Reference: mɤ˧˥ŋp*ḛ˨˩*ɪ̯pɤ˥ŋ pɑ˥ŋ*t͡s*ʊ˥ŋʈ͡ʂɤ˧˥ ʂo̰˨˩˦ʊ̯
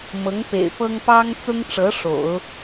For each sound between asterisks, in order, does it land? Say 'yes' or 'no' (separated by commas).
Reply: yes, yes